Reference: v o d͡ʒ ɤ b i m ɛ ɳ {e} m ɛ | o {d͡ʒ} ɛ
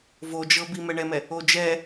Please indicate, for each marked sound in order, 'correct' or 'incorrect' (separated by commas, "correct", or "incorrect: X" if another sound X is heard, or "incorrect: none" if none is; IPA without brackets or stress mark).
incorrect: ɛ, correct